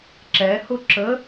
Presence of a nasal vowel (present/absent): absent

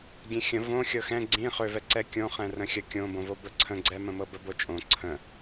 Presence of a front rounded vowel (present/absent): present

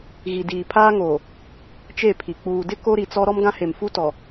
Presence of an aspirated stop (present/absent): present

